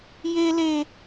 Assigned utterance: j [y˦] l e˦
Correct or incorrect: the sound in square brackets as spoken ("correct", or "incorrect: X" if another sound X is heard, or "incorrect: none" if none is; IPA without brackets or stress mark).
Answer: incorrect: e˦